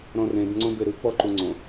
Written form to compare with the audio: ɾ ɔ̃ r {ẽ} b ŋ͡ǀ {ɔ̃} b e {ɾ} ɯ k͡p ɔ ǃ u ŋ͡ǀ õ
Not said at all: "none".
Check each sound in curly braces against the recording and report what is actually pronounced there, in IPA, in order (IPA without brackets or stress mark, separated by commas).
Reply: ẽ, õ, ɾ